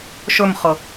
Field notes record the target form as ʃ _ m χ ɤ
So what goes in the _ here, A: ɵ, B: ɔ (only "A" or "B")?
A